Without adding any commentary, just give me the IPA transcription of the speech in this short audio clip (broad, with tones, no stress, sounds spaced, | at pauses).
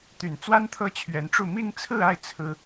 t̪ y˨˩ n t͡s w a˥ n t̪ʰ ɤ˥˩ t͡ɕʰ ɥ ɛ˧˥ n ʈ͡ʂ u˥˧ m i˥˧ ŋ t͡sʰ ɹ̩˥˧ a˥˩ ɪ̯ t͡sʰ ɹ̩˥